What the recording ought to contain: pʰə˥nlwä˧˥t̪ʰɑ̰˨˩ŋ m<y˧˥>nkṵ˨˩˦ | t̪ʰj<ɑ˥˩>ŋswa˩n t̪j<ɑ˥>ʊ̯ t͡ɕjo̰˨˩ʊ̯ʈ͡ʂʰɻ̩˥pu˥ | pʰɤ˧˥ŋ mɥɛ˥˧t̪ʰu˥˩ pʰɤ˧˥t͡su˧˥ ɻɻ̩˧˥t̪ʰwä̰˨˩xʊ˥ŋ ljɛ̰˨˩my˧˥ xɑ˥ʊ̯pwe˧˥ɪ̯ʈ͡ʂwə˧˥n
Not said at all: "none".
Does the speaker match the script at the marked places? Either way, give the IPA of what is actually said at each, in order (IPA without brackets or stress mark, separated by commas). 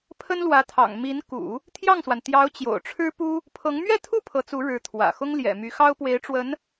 i˧˥, ɑ˥˩, ɑ˧˥